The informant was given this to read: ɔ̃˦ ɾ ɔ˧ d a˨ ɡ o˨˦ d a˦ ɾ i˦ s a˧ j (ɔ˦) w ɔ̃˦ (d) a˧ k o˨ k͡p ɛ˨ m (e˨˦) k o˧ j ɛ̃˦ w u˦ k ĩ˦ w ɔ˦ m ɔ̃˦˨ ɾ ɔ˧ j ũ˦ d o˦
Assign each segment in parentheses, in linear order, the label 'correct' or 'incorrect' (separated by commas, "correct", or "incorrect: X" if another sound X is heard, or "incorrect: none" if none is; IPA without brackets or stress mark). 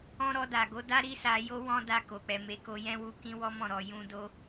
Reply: incorrect: o˦, correct, correct